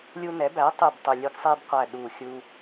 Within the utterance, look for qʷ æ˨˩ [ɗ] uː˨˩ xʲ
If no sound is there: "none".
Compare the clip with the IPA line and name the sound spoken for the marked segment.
ɗ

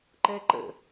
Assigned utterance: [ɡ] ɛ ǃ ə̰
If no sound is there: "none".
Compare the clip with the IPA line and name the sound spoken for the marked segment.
ǃ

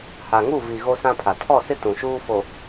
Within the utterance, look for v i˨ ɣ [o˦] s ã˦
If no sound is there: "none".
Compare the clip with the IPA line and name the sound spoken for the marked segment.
o˦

